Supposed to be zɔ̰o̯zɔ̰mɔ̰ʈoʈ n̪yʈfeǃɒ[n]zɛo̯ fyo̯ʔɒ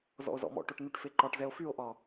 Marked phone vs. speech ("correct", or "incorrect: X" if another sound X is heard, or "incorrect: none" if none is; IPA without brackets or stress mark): incorrect: ʈ